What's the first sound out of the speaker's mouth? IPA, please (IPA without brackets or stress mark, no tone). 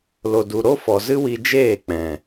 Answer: l